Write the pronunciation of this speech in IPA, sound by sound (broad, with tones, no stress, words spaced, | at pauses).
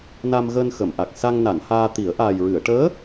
na˧mɣəː˧nxə˨˩˨m ʔa˨˩k̚ sa˧ŋ na˨˩˨n haː˧t̪i˨˩˦ə̯ ʔaː˨˩jɹɨ˨˩˨ə̯ʈəː˧˥